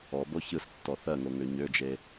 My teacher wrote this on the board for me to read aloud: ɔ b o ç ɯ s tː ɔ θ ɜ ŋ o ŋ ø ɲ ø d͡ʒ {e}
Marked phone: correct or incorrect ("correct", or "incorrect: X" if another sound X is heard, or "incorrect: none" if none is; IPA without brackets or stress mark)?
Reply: correct